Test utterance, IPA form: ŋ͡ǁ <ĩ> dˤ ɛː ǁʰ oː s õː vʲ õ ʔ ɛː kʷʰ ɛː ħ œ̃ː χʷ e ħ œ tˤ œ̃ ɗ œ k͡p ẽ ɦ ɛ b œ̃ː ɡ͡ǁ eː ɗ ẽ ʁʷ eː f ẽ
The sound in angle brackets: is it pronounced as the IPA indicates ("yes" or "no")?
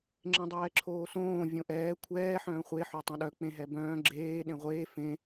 no